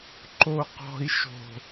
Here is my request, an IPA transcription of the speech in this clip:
ǃoqɔ̤i̯ʃo̤

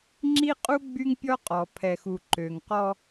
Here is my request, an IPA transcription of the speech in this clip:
ŋ͡ǁi˦qʼu˦ ɡ͡by˦ŋpʲɔ˦qʼɔ˨ pʰɛ˨xu˨ ǃø˨ŋqɔ˦

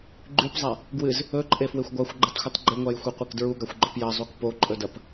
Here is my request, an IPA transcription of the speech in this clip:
ɡ͡ǃʉpzˤa | ɡwɨz | ɵǃʼefwexʷ ɡʷaxʷɡ͡ǃɨtˤxʷɨtˤ ɡ͡ǃɨŋʷajxʷeqʷek dɹuɡaxʷɡ͡ǃɵp jɐzˤuk poǃʼɵdɐp

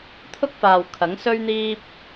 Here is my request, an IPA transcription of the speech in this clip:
t̪ʰʊ˥k̚faː˨w kʰɐ˨˥ŋsɵ˥ɥn̪iː˥p̚

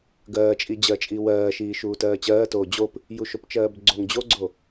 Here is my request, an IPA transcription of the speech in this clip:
ɡɜːt͡ʃʼid͡ʑɜt͡ʃʼi wɜːʃiː ʃuːtɜːt͡ɕɜːtoː d͡ʑop | juʃopt͡ʃɜːbɡ͡ǀoŋ d͡ʑoɡ͡ǀo

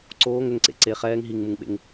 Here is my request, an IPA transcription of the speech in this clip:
ǀoːŋ ʏŋǀḛ ǀe χɛːŋ ɦiŋmuŋɓḛŋ

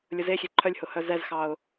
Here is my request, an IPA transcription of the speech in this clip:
lʲʊzexʲe ǃʰœlʲhʊhœ zɛzxɑʊ̯

